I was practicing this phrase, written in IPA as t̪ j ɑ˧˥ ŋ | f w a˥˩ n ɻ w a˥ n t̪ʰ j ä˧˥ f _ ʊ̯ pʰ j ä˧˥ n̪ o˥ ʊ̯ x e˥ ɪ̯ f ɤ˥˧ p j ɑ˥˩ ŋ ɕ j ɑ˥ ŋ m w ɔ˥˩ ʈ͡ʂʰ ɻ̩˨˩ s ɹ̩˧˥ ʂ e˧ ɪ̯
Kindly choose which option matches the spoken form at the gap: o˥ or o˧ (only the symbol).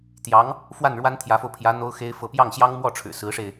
o˧